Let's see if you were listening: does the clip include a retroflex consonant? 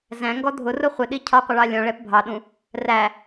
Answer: yes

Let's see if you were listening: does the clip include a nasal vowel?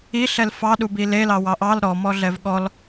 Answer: no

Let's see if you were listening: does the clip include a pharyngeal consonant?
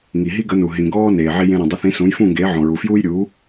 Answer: yes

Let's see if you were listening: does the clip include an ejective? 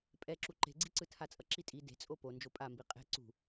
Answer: yes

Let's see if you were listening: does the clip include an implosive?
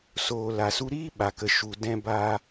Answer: yes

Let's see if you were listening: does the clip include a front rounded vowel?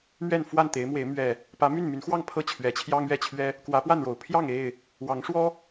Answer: yes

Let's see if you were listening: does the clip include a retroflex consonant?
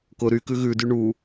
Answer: yes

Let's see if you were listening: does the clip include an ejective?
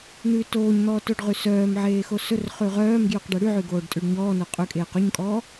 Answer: yes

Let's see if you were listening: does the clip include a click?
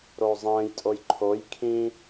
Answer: yes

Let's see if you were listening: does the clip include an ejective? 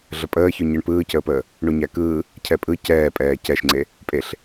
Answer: yes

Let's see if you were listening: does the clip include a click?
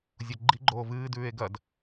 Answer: yes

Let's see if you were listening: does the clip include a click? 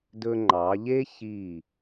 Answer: yes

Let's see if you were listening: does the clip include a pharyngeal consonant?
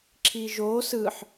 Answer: yes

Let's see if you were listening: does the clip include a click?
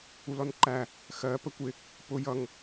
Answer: yes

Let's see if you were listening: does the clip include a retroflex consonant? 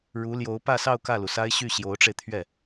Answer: yes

